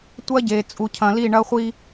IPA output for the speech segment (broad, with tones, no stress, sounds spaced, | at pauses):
tʷ ɐ˦ ɟ e˨ t͡sʼ u˨ cʰ ɐ̃˨ l i˦˨ ɳ ɐ˦ χʷ i˦